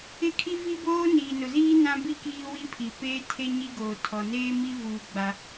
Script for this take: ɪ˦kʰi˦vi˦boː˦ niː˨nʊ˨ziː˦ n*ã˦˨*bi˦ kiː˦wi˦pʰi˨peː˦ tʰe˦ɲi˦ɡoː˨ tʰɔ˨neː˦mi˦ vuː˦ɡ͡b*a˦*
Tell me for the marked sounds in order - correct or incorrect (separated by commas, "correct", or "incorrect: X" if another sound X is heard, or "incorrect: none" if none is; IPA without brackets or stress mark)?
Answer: incorrect: ã˦, correct